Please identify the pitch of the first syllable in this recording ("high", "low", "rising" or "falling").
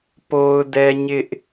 high